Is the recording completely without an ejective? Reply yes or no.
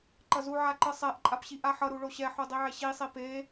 no